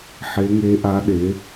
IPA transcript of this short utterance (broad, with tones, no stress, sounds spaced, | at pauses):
ħ e˧˥ ŋ e˧˥ ʔ a˧˥ ɗ e˩˥